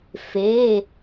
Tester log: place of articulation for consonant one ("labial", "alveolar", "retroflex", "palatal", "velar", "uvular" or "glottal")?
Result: labial